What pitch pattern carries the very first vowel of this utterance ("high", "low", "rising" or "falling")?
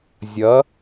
rising